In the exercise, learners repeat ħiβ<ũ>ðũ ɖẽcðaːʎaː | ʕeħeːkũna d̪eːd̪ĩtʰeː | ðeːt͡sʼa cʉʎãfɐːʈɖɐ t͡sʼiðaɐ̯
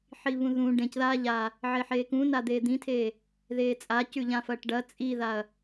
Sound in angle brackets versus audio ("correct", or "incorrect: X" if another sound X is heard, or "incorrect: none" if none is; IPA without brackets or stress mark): correct